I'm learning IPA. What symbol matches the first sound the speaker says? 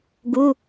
ɡ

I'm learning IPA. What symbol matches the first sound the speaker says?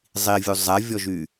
zˤ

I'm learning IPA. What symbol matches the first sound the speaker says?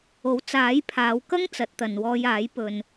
o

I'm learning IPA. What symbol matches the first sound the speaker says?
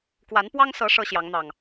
k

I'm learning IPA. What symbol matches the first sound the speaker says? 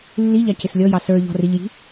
lː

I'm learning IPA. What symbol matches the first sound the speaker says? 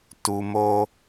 t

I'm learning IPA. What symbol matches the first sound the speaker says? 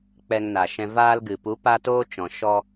k͡p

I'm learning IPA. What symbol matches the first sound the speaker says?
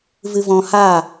v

